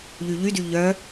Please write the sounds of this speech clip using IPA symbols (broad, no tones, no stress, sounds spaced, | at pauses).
ʎ y ʎ y d y ʎ œ